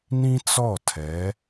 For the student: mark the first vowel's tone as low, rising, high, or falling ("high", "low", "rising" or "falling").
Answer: high